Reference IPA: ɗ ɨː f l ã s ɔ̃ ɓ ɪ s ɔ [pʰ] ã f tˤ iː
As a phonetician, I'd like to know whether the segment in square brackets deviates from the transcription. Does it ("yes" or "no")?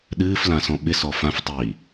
yes